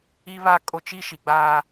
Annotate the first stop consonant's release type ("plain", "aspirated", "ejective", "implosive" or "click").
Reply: ejective